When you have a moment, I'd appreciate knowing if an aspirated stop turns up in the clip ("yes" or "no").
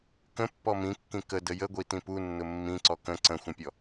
no